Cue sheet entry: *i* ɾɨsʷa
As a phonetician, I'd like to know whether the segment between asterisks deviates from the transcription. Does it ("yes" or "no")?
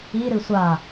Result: no